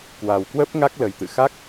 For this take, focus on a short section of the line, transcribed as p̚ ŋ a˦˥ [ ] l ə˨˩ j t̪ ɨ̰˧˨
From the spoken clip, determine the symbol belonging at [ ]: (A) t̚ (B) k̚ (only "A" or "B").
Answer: B